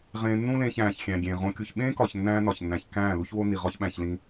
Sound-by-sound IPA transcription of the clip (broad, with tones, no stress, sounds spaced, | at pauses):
ʁ ẽː˧ nː ũ˦ l ẽː˧ ç æ̃ː˨ ç xʲ æ̃˨ ɡʲ ẽː˨ ʁ õ˧ kʲ u˨ ç ɓ ẽː˦ k ɒ˨ ç nː æ̃ː˦ n ɒ˨ ç nː æ̃˨ ç k æ̃ː˦˨ l u˦ ç w o˦ n i˨ ʁ ɒ˦ ç ɓ æ̃˧ ç l ĩ˧